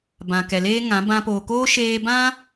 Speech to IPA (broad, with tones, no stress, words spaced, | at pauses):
bã˨kɛ˨leː˦ŋã˨˦ bã˧poː˨ koː˦ ʃeː˧bã˦